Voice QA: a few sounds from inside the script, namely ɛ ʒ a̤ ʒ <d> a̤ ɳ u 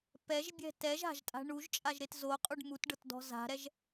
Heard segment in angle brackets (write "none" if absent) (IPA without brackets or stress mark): tʼ